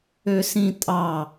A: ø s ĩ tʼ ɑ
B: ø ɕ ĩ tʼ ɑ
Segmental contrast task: A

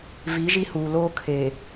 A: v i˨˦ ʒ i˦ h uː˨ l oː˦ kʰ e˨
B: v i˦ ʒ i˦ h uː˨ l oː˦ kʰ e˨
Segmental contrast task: A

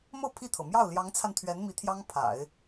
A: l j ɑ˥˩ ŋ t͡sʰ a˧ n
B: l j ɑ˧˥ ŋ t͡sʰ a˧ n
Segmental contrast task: B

